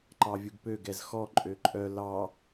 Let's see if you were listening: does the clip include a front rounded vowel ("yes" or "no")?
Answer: yes